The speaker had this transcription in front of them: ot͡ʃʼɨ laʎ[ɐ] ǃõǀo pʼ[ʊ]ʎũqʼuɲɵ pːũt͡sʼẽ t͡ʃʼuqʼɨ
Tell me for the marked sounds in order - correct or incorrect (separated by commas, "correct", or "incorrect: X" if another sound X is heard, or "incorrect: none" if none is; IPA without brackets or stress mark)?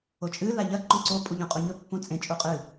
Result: correct, incorrect: u